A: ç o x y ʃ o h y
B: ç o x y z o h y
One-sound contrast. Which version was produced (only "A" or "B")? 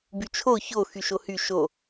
A